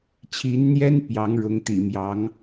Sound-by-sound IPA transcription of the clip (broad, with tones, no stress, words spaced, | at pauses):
t͡ɕʰi˧˥nn̪jɛ˥n pjɑ˧˥ŋɻʊ˧˥ŋt̪ḭ˨˩mjɑ˧˥ŋ